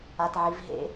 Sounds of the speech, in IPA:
atʕivɦḛ

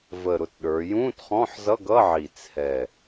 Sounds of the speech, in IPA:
və˨˩ɾʊ˨˩t ɗə˞˩˧ jũ˧˥˧tχɔ̃˧˥˧ħzʌ˧˥˧ɡʌ˧˥˧ ʕi˨˩t͡sʰɛ˨˩

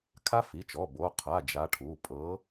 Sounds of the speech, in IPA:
kʰa˦˥fi˩˧˩t͡ʃɔ˩˧˩ bo˩˧˩ qʰa˩˧˩ d͡ʒa˨˦ʈʰu˩˧˩ pʼɤ˨˦

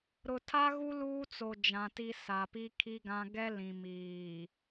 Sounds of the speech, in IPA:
ɾʊ˨tʰa˦ɣu˦ luː˦t͡so˨ d͡ʒã˨ti˦ sa˨pi˦kʰi˦ɡã˦ ɡɛ˦ lĩ˨miː˨

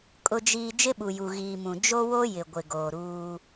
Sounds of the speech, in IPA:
kʼʊ˨d͡ʒiː˨ d͡ʒɪ˦ɓu˨ju˨ ɣiː˨mũ˨ d͡ʒo˦wo˦jɪ˨ ɡʷɪ˨ɡoː˨ɾuː˦

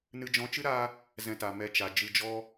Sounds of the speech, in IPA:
nɨ˧d͡ʒɔ̃˧t͡ʃɨ˦ ɾa˦ | zɛ̃˧ta˨ mɛ˧t͡ʃa˨ d͡ʒɨ˧d͡ʒɔ˦

